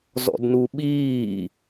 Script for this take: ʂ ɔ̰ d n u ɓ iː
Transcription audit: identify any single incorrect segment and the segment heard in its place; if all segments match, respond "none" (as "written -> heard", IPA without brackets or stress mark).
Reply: ʂ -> z